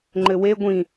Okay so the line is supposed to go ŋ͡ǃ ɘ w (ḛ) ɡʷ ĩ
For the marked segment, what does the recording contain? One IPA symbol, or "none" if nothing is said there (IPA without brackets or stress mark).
e